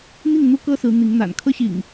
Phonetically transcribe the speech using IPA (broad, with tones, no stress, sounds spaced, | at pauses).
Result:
n̪ i˥˨ ŋ n̪ u˦ k ɤ˦ s ɹ̩˨˦ n̪ i˨˦ ŋ n̪ a̰˨˩ n kʰ ɤ˦ ɕ ḭ˨˩ ŋ